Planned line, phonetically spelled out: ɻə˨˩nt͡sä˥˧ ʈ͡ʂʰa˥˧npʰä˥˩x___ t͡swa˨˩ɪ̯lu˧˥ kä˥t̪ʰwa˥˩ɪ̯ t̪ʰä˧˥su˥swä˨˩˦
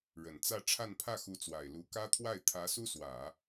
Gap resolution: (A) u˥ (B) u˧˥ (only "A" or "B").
B